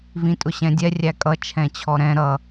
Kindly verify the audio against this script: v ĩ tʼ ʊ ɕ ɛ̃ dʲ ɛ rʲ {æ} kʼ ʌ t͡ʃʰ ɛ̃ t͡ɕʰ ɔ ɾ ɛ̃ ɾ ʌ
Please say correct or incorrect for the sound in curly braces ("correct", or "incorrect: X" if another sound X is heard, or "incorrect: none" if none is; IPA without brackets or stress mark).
correct